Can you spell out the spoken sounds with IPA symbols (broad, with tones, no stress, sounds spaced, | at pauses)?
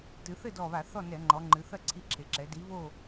t ɨ˩˧ θ ɘ˥˨ d ɔ˧˩ β a˧˩˧ θ ɔ˥˨ n ɛ˧˩˧ ŋ͡ǃ ɔ˩˧ ŋ͡ǃ ɨ˩˧ θ ɐ˥˨ ǀʰ i˧ ǁʰ e˩˧ ǁ ɛ˩˧ d i˨˥ β o˥˨